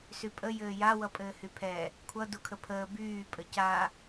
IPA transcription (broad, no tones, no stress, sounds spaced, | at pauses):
s y pʼ ə j ɘː j a w ʌ pʼ ɘː h y pʰ ɛ | kʷʰ ʌ d u kʰ ə pʰ əː b yː pʼ ə c a